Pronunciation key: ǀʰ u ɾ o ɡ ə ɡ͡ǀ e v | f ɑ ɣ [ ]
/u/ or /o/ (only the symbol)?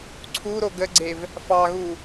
u